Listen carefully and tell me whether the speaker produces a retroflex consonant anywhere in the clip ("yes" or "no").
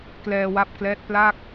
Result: no